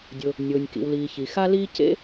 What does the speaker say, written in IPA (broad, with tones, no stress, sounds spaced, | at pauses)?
dʲ ʊ˩ | nʲ ʊː˩ nʲ k ḭ˩ w l iː˩ ç i˩ x a˦ l iː˦ c ḛ˦